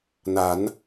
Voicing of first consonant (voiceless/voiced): voiced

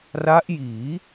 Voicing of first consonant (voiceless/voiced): voiced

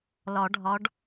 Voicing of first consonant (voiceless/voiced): voiced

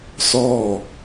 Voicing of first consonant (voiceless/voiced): voiceless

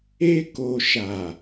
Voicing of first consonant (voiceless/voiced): voiceless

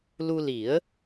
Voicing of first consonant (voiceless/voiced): voiced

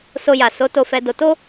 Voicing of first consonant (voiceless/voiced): voiceless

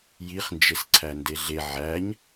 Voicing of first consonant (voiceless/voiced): voiced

